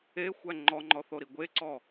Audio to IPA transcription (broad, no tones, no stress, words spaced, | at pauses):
exʷæ ŋ͡ǃɔŋ͡ǃɔθoɾi ɡʷeǀɔ